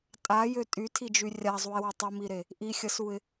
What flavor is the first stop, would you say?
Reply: ejective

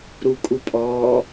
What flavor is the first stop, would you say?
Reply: ejective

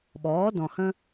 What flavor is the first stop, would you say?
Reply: implosive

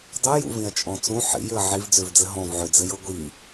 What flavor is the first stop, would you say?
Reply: plain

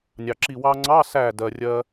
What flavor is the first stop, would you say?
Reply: click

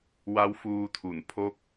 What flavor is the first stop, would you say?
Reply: aspirated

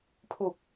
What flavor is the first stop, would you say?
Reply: aspirated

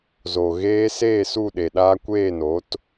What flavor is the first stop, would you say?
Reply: implosive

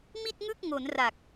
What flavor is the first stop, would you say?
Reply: plain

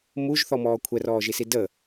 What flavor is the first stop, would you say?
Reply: aspirated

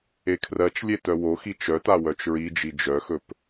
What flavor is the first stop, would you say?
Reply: aspirated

